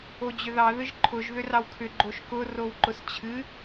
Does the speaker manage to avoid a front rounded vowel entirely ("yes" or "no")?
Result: no